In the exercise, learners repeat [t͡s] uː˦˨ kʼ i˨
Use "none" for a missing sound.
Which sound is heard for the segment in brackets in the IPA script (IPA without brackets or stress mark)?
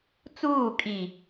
t͡s